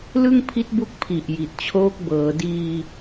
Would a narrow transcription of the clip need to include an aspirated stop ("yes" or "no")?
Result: yes